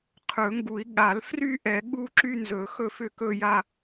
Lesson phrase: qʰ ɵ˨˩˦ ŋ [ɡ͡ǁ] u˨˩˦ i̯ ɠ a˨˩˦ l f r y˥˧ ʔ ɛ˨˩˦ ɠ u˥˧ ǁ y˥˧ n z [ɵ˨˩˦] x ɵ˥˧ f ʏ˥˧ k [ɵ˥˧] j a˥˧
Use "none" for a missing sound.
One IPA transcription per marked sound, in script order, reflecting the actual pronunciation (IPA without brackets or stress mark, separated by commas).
ɡ, ɵ˨˩˦, ɵ˥˧